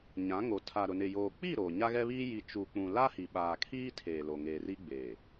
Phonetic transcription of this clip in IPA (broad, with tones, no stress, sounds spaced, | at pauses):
ɲ ã˨˦ ŋ o˨ tʰ a˨ ɾ ʊ˨ n ɪ˨ j oː˨ k͡p i˦˨ ɾ oː˨ ɲ a˦ ɣ ɛ˦ β iː˦ j i˨ t͡ʃ u˨ k͡p ũ˨ l a˦ h i˨ ɓ aː˨ kʰ iː˦ tʰ eː˨ l o˨ ŋ eː˨ r i˦ ɡ͡b eː˨